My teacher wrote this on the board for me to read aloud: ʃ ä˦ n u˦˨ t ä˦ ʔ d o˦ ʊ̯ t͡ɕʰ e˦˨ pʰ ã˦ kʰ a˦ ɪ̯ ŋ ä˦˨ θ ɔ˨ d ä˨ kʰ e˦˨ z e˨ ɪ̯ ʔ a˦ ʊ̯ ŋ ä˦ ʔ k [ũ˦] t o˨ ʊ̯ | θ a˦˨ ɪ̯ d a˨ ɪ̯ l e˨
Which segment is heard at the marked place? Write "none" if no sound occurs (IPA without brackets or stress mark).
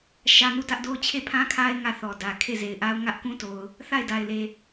ũ˦